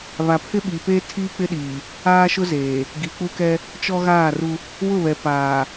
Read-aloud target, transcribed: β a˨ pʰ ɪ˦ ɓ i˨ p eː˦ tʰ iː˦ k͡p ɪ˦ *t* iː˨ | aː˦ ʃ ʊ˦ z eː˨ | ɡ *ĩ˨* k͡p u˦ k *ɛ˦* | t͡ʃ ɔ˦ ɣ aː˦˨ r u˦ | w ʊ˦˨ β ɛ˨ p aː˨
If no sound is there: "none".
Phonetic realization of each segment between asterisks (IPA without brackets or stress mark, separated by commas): ɗ, i˨, ɛ˦